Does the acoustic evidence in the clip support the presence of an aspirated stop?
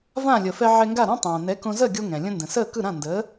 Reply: no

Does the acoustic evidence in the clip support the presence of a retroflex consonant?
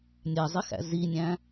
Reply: no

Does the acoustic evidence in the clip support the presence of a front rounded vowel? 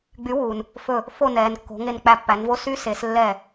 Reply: yes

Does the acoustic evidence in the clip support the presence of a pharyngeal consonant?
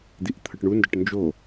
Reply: no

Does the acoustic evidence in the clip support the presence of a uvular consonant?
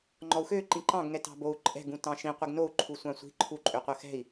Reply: yes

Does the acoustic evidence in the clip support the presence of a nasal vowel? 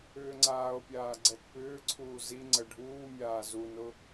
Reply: no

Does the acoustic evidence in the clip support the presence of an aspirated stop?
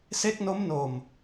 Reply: no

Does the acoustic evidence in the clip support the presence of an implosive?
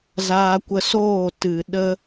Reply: yes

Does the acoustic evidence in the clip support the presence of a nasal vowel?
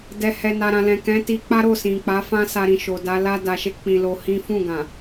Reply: yes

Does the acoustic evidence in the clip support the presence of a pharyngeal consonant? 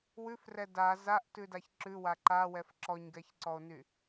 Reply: no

